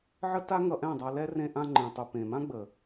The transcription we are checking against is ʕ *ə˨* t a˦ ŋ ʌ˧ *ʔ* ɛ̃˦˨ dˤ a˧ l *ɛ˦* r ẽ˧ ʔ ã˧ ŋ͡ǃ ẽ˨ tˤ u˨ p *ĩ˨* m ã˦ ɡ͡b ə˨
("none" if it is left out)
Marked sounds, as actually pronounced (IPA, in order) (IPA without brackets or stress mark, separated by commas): ə˦, ʔ, ɛ˦, ẽ˨